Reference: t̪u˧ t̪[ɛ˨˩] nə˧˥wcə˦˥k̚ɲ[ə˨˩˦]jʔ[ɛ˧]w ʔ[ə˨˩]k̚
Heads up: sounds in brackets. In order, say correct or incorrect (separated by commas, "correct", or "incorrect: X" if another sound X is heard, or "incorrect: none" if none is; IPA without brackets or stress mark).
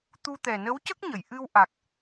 correct, incorrect: ə˨˩˨, incorrect: ɨ˧, incorrect: a˨˩